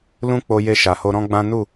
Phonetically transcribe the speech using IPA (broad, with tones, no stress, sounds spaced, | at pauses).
l ũ˦ k͡p o˧ j e˧ ʃ a˨ h o˧ ɾ ɔ̃˦ ɡ͡b ã˦ n u˦˨